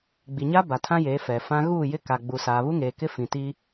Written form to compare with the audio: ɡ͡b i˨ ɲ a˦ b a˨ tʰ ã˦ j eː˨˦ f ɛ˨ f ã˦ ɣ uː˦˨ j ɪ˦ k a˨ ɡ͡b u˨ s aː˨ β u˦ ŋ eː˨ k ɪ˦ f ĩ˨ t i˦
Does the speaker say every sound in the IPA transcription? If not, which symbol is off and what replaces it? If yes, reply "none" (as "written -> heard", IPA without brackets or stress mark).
none